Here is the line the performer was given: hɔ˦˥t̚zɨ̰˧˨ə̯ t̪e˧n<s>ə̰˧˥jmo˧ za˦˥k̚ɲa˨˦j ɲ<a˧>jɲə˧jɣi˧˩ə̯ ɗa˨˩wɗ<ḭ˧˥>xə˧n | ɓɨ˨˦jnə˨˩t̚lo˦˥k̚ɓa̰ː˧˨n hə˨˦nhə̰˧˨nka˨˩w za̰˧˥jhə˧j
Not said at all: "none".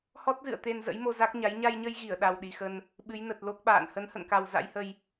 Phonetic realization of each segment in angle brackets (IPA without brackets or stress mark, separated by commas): z, a˧, i˨˩